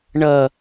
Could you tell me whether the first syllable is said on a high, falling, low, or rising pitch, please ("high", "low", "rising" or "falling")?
high